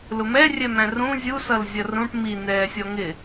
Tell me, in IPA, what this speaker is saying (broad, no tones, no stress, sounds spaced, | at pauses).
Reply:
l ʊ m ɛ rʲ ɛ m æ̃ r ũ zʲ u s ʌ l zʲ ʌ r ũ ʈ m i n ɛː sʲ ɔ ŋ ɪ